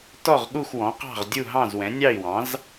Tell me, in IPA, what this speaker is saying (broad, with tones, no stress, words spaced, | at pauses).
tɔ˥˨ʁɠu˥˨xwɔ̃˩˥qɑ̤˥˨ʁ dʲu˥˨ɦɑ̃˥˨zwɛ̃˩˥ nʲɑ˥˨i̯wɑ̃˩˥z